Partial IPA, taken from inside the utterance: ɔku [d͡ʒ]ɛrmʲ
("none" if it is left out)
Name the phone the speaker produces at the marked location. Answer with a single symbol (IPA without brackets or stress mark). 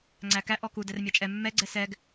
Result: d